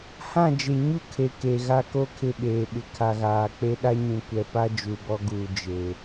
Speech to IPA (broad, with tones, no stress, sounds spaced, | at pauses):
h ã˦˨ d͡ʒ e˨ ɲ u˦ kʰ e˨ k e˨ ɣ a˦ k o˦ kʰ ɪ˦˨ ɓ eː˨ ɓ ɪ˨ kʰ a˨ ɣ aː˨ k͡p e˦ ɗ a˦ ɲ ũ˨ kʷ ɛ˨ p a˦ d͡ʒ u˨ b ɔ˦ ɡ uː˨ d͡ʒ e˨